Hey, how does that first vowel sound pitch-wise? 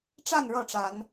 falling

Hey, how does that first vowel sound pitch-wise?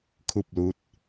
falling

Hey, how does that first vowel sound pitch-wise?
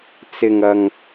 low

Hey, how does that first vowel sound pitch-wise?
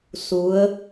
rising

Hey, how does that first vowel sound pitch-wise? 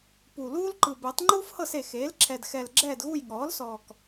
low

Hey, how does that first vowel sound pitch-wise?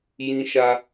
high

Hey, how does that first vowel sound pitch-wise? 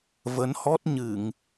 rising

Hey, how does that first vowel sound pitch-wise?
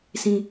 high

